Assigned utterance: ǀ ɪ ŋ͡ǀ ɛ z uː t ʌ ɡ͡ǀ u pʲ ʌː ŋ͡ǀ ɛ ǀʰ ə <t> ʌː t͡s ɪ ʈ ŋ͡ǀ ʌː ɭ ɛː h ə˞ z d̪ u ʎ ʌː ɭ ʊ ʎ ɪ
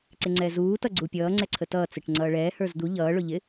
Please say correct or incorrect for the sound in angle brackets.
correct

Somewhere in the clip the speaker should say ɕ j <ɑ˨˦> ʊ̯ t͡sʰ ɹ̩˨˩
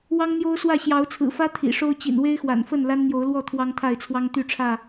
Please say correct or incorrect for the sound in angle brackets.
correct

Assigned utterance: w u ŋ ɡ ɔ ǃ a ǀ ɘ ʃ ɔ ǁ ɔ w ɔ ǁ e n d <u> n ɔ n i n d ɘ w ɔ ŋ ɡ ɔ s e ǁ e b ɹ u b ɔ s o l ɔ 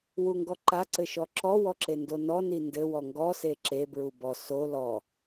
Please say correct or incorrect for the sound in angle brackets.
incorrect: o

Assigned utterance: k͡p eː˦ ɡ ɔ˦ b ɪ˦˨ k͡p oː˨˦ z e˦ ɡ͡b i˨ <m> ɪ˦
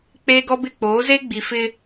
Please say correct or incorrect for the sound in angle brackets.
incorrect: f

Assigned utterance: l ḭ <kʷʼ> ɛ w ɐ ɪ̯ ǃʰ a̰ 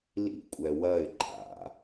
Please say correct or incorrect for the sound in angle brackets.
correct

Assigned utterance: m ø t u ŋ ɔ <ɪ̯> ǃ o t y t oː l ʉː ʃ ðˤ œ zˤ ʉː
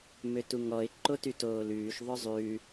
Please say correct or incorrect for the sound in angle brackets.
correct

